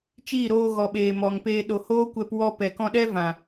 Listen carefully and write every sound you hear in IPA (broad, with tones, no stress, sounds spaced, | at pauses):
t͡ʃ iː˦˨ ɾ oː˧ ɣ ɔ˨ ɓ eː˨ m ɔ˨ ŋ p eː˧ ɗ o˨ h oː˦ kʷ ɛ˧ p w ɔ˧ p ɛ˨ k ɔ̃˧ ɗ ɛ˦ v ã˨